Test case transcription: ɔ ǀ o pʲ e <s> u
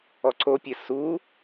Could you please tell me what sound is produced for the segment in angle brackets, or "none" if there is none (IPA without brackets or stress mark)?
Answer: s